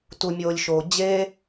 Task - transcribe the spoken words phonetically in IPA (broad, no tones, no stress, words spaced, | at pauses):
tumʲoːlʲʃoː d͡ʑe